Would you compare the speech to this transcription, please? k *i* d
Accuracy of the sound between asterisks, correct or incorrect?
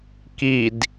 correct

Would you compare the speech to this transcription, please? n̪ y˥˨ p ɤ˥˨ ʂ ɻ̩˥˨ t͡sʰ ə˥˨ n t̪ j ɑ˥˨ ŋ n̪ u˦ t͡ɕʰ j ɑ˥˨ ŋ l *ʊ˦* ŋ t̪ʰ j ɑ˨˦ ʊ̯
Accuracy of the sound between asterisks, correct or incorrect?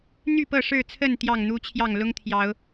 correct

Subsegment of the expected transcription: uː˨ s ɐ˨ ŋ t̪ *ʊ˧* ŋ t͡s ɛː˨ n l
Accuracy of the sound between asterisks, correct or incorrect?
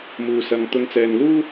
correct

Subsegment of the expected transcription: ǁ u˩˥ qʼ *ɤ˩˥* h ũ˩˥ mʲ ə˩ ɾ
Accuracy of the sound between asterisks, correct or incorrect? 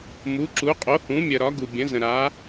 incorrect: o˩˥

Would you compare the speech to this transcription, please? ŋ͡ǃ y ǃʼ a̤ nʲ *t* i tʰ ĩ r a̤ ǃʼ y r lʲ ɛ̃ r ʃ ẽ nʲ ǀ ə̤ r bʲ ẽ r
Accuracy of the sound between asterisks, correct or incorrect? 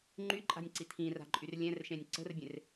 incorrect: ǀ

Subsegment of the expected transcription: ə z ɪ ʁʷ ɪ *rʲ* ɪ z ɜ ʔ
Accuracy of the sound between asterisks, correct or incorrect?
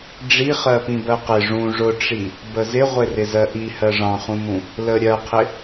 incorrect: r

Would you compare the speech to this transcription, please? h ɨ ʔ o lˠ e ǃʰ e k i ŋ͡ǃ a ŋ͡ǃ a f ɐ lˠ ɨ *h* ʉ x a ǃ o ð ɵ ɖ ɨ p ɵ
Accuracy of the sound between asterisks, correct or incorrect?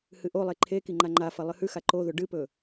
correct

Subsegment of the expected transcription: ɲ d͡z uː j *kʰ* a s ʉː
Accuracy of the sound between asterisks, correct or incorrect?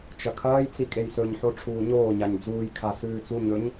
correct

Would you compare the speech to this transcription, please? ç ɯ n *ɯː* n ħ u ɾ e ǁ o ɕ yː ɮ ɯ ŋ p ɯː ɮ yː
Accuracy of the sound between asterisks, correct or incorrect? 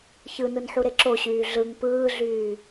incorrect: ɯ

